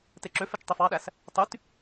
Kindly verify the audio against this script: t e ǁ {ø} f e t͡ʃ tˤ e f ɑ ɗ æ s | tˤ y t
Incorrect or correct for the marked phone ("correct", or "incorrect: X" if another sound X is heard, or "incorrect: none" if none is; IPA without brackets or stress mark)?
correct